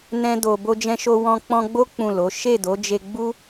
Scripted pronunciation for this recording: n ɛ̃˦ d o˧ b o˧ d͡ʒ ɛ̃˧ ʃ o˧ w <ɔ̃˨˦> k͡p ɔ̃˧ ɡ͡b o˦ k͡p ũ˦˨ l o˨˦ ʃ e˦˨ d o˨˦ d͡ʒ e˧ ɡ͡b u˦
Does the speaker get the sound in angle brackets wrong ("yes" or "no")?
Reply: yes